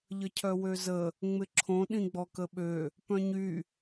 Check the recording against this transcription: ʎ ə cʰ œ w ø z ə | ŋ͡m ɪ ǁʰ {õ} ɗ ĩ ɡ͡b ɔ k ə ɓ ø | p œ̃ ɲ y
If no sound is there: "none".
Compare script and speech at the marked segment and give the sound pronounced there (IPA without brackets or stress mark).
õ